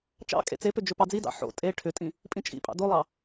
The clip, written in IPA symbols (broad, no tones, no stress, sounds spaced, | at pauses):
t͡ʃ ɑ̰ kʼ ḛ t͡s e p ʏ d͡ʒ ʏ p ɑ d͡z i d ɑ̰ ħ o̰ tʼ e ʈʰ ʏ tʼ ĩ | pʼ ĩ t͡ʃʼ ḭ pʼ ɑ̰ d o lˠ ɑ